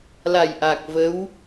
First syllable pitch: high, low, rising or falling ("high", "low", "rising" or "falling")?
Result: low